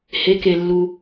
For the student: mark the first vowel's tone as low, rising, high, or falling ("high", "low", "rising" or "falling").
rising